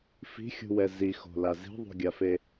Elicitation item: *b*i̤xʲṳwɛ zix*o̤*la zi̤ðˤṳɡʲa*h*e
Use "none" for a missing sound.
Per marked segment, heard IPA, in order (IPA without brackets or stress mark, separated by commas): f, o̤, f